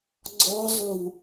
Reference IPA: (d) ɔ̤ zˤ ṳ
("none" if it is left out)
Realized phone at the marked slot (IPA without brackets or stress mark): ɡ͡ǀ